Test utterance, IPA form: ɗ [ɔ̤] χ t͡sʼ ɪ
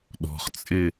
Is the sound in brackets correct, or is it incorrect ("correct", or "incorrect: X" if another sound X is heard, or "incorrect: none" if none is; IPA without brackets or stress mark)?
correct